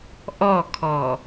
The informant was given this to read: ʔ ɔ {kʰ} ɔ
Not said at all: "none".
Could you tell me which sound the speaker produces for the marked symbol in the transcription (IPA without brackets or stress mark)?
kʰ